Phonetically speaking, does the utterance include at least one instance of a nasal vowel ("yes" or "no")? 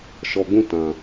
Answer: yes